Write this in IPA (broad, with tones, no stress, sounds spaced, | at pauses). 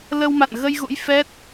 l ə˧ w m a̰˧˨ n ɣ ə˧ j ɣ ṵ˧˥ j f ɛ˦˥ t̚